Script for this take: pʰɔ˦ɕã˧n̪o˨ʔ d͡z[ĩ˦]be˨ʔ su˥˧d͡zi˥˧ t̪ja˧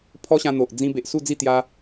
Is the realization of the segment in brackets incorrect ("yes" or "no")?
yes